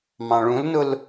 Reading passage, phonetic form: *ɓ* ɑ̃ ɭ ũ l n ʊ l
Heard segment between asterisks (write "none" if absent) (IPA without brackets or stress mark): m